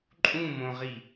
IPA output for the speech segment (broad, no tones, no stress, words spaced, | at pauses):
ǃʼũmõʁi